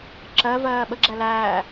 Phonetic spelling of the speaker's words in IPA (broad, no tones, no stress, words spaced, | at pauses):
ǁɜvɜː ɓəɡ͡ǁæ læː